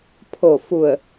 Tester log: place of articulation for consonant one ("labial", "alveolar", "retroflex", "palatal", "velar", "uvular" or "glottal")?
labial